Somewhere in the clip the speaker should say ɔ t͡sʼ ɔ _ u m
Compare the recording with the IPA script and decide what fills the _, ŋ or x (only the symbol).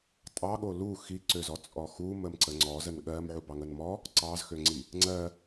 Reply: x